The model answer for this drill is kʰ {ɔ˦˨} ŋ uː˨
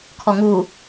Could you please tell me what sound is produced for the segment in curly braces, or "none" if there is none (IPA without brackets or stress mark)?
ɔ˨